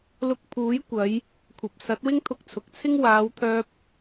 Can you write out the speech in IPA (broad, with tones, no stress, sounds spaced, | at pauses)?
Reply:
l ʊ˧ k̚ pʰ uː˨˥ j kʷ ɐ˨˧ j | kʷʰ ɐ˨ p̚ s ɐ˨˥ t̚ w ɪ˥ ŋ t̪ʰ ʊ˧ k̚ t͡sʰ ʊ˨ k̚ t͡sʰ ɪ˥ ŋ w aː˨˧ w t̪ʰ œː˧ p̚